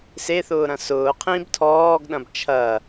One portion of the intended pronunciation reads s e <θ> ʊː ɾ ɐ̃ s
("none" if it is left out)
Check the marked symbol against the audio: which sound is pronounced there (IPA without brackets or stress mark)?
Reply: θ